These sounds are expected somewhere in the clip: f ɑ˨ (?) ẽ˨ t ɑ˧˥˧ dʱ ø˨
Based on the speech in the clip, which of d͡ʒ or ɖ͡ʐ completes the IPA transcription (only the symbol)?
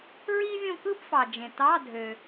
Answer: d͡ʒ